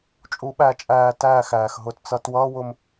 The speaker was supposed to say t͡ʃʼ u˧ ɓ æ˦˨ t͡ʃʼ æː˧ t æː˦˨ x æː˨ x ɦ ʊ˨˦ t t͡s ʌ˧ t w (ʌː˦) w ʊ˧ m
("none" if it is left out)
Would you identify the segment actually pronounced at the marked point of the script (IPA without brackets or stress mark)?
ʌː˦